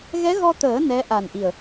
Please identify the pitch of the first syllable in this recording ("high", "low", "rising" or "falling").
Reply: rising